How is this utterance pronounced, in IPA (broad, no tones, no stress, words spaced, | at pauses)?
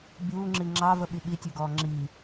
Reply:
bʲuːŋ͡ǁi ŋ͡ǁɑvə ɓiɓitʲʉɡɔː ŋ͡ǁi